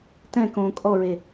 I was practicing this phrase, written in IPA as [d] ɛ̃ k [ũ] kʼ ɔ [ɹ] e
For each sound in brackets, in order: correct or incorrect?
incorrect: t, incorrect: õ, correct

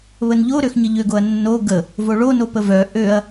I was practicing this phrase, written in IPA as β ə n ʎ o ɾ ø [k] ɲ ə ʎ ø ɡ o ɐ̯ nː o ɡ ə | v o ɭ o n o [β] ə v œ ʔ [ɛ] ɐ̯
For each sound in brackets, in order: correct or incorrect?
incorrect: x, incorrect: p, incorrect: ø

